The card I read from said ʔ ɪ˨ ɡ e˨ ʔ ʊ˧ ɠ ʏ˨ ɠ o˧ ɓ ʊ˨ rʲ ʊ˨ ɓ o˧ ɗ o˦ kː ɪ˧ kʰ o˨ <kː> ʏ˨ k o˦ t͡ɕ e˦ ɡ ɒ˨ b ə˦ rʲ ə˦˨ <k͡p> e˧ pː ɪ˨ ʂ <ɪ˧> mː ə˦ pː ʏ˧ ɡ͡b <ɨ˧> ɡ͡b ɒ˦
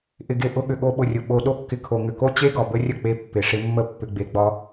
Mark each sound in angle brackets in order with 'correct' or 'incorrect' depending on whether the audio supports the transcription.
incorrect, correct, correct, incorrect

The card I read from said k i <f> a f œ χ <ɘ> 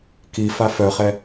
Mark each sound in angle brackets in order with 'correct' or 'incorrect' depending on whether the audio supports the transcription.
correct, incorrect

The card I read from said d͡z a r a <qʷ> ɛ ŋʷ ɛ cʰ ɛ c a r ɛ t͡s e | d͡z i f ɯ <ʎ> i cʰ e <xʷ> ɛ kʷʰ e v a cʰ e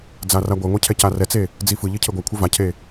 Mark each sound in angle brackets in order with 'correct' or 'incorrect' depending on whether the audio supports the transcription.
incorrect, correct, incorrect

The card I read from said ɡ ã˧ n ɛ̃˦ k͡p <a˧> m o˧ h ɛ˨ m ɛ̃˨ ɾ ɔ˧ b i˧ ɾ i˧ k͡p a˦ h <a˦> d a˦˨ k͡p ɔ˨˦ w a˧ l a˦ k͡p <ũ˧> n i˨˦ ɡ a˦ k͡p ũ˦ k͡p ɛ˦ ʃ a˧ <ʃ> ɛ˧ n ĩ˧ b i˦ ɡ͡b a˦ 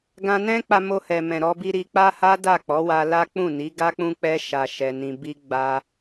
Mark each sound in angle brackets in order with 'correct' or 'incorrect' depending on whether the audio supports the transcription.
correct, correct, incorrect, correct

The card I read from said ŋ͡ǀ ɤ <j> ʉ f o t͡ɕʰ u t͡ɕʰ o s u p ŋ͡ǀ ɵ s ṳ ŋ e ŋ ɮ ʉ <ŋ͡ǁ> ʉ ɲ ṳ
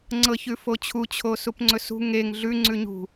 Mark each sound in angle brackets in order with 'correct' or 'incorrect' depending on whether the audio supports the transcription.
incorrect, incorrect

